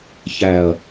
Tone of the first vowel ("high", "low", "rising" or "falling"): low